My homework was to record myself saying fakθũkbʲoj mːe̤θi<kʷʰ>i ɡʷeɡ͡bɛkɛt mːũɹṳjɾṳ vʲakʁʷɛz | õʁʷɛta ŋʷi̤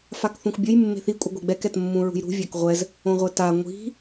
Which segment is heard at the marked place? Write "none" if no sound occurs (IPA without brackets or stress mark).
kʷʼ